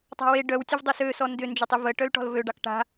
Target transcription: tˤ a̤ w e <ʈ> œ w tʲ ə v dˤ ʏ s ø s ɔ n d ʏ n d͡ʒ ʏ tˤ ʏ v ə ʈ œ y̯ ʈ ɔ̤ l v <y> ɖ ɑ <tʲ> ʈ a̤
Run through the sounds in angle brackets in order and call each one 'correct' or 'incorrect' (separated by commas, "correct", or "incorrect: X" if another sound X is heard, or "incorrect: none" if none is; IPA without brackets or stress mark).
incorrect: ɖ, incorrect: ø, incorrect: k